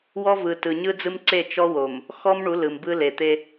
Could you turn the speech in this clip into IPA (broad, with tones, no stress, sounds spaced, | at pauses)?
w ɔ˦ v ɯ˨ t ɯ˨ ɲ ɯ˦ d͡z ɯ˦ m ǀ e˦˨ t͡ʃ ɔ˦ w o˨ m | x ɔ˦ m ɳ u˨˦ l ɯ˨ m b ɯ˦ l e˨ t̪ e˦